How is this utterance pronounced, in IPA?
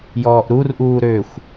j ɔː ʔ ɾ u r ʔ uː ɾ ø xʷ

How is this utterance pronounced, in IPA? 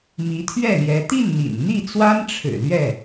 m i˧˥ t̪ʰ ɥ ɛ˥˩ l j ɛ˧˥ t̪ i˥˩ n n̪ ḭ˨˩ n n̪ i˥˩ t͡s w a˥ n ʈ͡ʂʰ ɻ̩˨˩ l ɥ ɛ˥˩

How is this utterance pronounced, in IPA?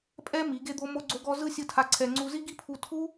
pʼ ɛ˦ m i˨˦ ɡ e˦ d̪ o˦ m o˦ ɡ͡ǀ o˦ ɡ ɔ˦ z ɯ˦ sʲ ɯ˧ tʰ a˧ ǀʰ ɛ˧ ŋ͡ǀ u˧ z i˦ ɡ i˦ pʰ u˧ tʰ u˦

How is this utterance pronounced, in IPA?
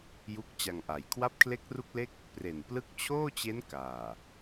j u˥˩ k̚ t͡ɕ a˧ ŋ ʔ a˨˩ j kʰ w a˦˥ p̚ kʰ l e˦˥ k̚ r u˦˥ k̚ l e˥˩ k̚ | p r e˨˩ n p l ɯ˦˥ k̚ t͡ɕʰ oː˥˩ t͡ɕ e˦˥ n k aː˨˩

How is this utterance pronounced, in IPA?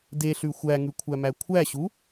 d e ɬ ʉ xʷ æ ŋ ʉ kʷʰ æ m æ kʷʰ æ ɕ u

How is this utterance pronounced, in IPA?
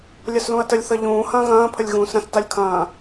lʲ ɐ s l ũ ɐ̯ t ə lʲ θ ʌ ʎ ũː h ɐ̃ː ɣ ɐ̃ː pʰ ə lʲ ɣ ũː s ɾ ɐ̃ s t a lʲ kʰ ɐ̃ː

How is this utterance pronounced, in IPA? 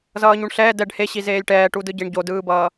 z ʌː ɲ u ɳ ɬ ɛː d ɛ ɖ h e ɕ i z eː lʲ ʈ ɛː ʈ u d ɯ ɟ e ɳ ɟ o d ɯː b ʌː

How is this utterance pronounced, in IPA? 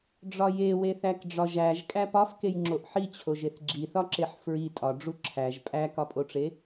ɖ͡ʐ ɒ j e w e θ æ k ɖ͡ʐ ɒ ʒ æ ʒ kʼ æ p ɒ f k e j ŋ͡ǁ o ʔ ħ i t͡ɕʰ o ʒ e θ ɡ͡ǁ i θ ɒ ǁ e ħ f ɹ i tʼ ɒ ɖ͡ʐ u ǁʰ æ ʒ pʼ æ k ɒ pʼ o ʈ͡ʂ e

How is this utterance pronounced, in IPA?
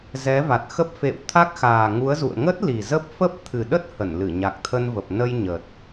z ɛ˨˦ v a˨˩ t̚ x ə˦˥ p̚ f ḛ˧˨ w t̪ʰ a˦˥ k̚ x aː˨˩ ŋ u˨˦ ə̯ z ṵ˧˨ ə̯ ŋ ə˦˥ t̚ l i˨˩ z ə˦˥ p̚ f ə˦˥ p̚ t̪ʰ ɨ˨˩ ɗ ə˦˥ t̚ h ə˧˩ n l ɨ˧˩ ɲ a˨˩ k̚ t̪ʰ ə˧ n v ə˨˩ p̚ n ə˧ j ɲ ə˨˩ t̚

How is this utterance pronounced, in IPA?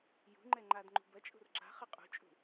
j ṳ ŋ͡ǃ ɛ ŋ͡ǃ a d ŋ͡ǃ ṳ b ɐ t͡ʃʼ ṳ r ǁ a̤ χ ɘ qʼ ṳ t͡ʃʼ ṳ

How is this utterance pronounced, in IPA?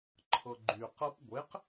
ǃʰ ɤ ɡ͡ǃ y q ɤ p ɡʷ e q

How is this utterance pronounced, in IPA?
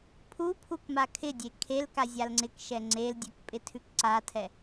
pʰ u pʰ u k m a kʰ ɪ dʲ e kʰ e l k a zʲ a l ŋ͡ǀ ɪ k ʃ ɛ ŋ͡ǀ e l dʲ ɛ k pʼ ɪ tʰ ʉ k ǀ a tʰ ɛ

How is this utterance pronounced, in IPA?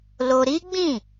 l o˧ ɾ i˦ ɡ͡b ĩ˦˨

